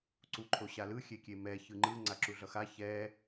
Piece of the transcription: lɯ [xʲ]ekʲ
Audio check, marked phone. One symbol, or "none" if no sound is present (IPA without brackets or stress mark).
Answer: xʲ